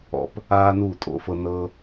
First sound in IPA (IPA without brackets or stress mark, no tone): ɔ̰